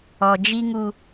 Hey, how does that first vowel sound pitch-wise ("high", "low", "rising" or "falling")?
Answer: low